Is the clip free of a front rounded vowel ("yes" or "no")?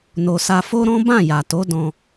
yes